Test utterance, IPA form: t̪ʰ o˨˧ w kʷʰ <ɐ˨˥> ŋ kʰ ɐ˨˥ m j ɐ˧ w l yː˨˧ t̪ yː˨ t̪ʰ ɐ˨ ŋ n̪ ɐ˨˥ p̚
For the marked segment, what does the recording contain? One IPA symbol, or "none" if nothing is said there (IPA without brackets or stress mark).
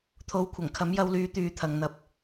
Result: ɐ˨˩